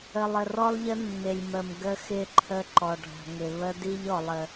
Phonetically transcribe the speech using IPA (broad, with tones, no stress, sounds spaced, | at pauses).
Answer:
ə˨ lˠ ə˨ r ɔ˦ lˠ ʎ ə˦ nː ɪ˨ lʲ m ə˨ m ɡ ə˦ x ɪ˦˨ ǃʰ ə˦ ǃ ɔ˨ ɖʱ ɔ̤˨ ŋ ɪ˨ β ə˦ d i˦ ʎ ɔ˨ lˠ ə˨